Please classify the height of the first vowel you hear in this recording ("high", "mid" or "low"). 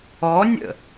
mid